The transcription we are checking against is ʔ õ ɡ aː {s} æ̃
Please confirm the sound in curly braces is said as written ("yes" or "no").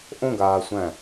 no